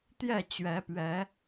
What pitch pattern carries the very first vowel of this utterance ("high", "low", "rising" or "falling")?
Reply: falling